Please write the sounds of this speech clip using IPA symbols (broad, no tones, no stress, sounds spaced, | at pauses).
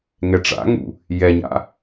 ŋ ɛ ʈ͡ʂ a̰ ŋ ṵ | j ɛ ɲ a̰